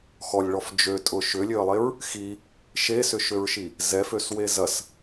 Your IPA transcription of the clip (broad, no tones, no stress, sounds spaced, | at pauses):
x ɔ lʲ ɭ ɔ f d͡ʒ ø tʼ ʊ ʃ ʏ lʲ ø ə̯ lˠ e ɹ | x i | ʃ e s ʏ ʃ ø ɹ ʃ i | z ɛ f ø s w e z ɐ s